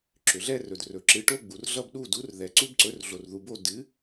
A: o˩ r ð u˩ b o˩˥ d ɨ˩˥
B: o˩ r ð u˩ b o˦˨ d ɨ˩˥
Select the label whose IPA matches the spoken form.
B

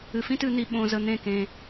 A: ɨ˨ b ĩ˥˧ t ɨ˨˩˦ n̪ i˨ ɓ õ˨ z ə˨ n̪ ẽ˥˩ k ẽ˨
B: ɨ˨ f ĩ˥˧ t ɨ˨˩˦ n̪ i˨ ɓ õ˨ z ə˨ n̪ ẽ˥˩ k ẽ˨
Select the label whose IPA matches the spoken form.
B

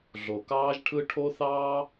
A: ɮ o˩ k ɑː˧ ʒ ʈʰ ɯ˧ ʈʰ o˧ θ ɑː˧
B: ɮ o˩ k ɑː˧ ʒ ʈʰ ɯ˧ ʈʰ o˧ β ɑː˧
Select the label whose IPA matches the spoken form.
A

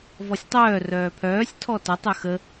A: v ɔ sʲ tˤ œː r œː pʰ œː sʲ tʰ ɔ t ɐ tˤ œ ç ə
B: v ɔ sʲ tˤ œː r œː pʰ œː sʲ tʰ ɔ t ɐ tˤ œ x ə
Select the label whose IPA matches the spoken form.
B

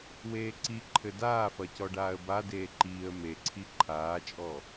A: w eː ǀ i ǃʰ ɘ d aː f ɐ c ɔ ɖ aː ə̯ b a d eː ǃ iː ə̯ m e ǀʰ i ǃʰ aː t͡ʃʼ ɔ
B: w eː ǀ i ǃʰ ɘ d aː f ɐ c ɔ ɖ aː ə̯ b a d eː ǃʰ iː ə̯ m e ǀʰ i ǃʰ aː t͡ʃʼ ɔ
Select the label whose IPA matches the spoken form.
A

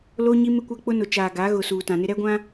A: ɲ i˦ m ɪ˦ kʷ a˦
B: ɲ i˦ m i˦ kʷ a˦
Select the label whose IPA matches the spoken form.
A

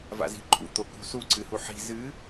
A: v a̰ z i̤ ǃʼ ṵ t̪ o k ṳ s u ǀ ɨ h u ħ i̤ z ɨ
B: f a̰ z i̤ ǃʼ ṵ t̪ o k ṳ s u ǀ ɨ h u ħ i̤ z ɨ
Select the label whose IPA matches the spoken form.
A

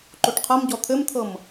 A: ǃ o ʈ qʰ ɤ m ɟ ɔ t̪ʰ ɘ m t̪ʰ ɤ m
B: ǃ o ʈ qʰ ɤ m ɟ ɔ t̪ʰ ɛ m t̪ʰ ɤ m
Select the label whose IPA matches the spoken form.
A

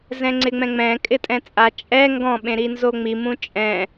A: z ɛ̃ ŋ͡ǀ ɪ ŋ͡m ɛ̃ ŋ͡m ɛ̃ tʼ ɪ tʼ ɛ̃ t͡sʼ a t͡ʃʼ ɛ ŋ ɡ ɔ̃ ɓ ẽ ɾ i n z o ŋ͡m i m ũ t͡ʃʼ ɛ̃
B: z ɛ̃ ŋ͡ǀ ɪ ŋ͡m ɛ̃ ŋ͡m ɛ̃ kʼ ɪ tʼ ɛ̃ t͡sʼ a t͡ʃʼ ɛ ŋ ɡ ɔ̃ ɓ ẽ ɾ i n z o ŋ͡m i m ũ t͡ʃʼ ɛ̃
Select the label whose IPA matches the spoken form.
B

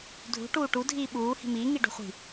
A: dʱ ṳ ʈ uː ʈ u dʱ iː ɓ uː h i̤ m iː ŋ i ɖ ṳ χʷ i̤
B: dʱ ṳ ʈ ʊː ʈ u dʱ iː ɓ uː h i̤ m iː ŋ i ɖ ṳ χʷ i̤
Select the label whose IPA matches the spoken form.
A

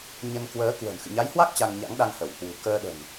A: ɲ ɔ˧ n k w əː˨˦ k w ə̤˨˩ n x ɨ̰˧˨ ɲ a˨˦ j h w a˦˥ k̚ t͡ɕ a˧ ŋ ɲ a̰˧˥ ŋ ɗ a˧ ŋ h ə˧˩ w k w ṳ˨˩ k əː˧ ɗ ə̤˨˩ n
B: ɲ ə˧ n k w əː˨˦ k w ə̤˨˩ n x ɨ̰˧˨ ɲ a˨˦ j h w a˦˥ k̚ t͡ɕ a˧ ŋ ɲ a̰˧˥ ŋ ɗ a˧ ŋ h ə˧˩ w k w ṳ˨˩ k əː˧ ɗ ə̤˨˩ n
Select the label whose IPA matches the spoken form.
B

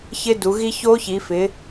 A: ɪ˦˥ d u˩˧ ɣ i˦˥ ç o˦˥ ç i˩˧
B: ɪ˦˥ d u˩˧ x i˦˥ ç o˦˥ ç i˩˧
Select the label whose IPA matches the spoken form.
A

